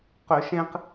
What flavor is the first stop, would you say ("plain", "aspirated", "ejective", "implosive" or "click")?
plain